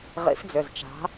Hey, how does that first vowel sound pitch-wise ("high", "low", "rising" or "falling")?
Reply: rising